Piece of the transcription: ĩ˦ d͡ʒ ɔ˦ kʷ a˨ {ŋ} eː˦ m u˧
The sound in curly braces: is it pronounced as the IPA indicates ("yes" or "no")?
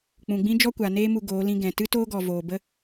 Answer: no